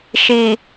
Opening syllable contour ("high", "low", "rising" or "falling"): low